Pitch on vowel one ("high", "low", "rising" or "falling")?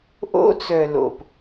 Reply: high